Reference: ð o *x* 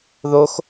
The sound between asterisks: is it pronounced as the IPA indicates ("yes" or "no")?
yes